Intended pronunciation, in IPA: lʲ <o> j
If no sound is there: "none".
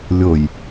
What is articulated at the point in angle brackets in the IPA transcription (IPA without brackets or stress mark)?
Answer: o